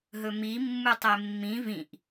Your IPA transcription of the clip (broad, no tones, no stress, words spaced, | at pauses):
ɦɵmi mːutˤemːĩ vĩʔ